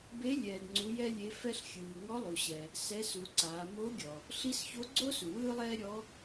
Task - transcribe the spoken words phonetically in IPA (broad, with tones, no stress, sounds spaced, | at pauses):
b e˧˥ lʲ ɛː˩ d ŋ͡ǀ u˩˧ j ɛ˧ lʲ e˩˧ f ɛ˧ ɬ xʲ ɯː˩ ŋ ɔ˧˥ lˠ u˩ ɕ ɛ˩ | s ɛ˧˥ s u˩˧ ǀ aː˩˧ m o˧˥ ɡʲ ɔ˩ | ɬ i˧˥ s ç o˧˥ ɡ͡ǀ o˥ s u˩ w ɯː˥ lˠ ɛː˥ ɾʲ ɔ˧˥